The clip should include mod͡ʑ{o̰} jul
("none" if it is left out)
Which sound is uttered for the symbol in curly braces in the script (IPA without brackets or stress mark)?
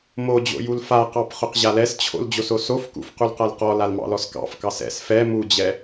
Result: o̰